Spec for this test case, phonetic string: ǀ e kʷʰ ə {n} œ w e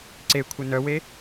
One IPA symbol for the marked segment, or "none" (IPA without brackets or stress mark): n